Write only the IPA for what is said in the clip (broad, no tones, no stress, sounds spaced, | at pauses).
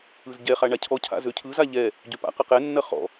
ɯ z ɟ ɛ χ a ɳ a cʰ ɔ cʰ a̰ z ø cʰ ɯ z a ʎ ɛ | ɟ ø p a̰ q ɐ q ɛ nː ɐ χ ɔ̰